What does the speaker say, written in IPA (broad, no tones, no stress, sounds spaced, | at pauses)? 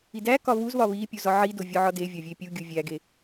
i d æ k ɒ β u z β ɒ β i pʲ u z ɒ ʕ i d o vʲ ɒ ʕ ɒ d e vʲ ɒ vʲ e pʲ u ɡʲ u vʲ æ ɡ e